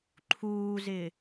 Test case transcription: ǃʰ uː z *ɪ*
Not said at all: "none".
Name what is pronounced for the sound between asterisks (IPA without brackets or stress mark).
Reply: ɪ